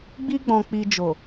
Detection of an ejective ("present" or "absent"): absent